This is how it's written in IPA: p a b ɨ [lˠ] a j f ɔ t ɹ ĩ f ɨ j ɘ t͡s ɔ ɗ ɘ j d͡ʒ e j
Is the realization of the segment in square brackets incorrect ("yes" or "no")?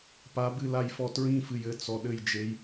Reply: yes